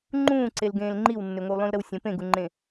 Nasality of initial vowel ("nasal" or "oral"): nasal